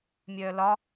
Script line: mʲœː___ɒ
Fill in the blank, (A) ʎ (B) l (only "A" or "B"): B